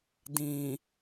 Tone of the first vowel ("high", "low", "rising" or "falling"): low